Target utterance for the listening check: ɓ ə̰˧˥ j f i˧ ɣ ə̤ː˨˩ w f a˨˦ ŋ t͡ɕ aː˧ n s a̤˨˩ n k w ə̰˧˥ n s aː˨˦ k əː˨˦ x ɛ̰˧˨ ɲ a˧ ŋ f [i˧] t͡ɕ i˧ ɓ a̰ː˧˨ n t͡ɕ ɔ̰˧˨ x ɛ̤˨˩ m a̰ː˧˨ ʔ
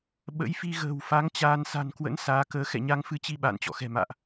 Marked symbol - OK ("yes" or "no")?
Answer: no